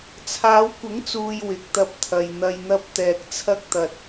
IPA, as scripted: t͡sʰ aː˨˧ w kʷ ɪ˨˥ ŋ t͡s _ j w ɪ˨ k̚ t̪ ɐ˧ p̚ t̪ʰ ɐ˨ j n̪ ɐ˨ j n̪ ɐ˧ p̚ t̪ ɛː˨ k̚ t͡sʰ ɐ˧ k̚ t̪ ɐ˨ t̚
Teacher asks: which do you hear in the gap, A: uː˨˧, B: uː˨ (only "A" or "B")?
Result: B